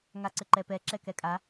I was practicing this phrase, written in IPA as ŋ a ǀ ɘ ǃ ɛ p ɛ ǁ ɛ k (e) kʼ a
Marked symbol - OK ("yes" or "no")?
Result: no